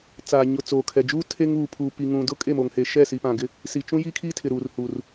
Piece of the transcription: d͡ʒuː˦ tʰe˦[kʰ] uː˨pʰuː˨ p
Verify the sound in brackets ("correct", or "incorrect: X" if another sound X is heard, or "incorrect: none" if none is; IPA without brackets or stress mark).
incorrect: ŋ